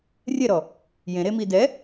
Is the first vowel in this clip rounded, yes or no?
no